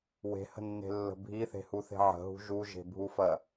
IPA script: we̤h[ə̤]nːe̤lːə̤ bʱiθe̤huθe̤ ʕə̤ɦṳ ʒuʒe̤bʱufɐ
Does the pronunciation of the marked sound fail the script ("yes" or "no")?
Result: no